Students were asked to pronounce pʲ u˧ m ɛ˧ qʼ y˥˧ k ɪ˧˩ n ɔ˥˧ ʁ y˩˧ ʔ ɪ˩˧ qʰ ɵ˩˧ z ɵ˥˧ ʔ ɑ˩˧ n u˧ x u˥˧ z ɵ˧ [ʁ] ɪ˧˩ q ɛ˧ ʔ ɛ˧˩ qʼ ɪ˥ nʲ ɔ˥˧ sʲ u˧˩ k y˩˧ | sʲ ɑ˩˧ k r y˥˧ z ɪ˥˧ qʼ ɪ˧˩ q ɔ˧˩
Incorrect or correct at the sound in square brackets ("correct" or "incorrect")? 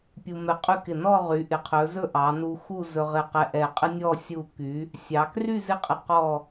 correct